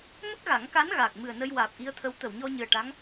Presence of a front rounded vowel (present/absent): absent